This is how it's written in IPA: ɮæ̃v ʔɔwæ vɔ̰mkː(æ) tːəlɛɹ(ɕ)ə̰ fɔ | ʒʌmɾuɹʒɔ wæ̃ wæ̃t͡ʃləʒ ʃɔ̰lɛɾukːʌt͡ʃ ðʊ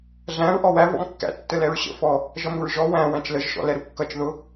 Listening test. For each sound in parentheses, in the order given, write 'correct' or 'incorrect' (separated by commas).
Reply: incorrect, correct